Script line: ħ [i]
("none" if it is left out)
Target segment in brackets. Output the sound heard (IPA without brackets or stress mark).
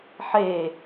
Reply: e